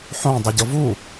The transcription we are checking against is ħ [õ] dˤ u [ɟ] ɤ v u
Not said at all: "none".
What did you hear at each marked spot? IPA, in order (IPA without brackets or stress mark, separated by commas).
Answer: õ, ɟ